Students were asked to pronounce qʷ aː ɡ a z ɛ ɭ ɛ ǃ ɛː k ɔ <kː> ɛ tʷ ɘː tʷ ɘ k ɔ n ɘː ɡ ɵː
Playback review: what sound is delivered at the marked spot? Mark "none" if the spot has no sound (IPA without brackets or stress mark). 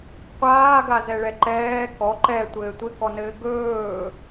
ǃ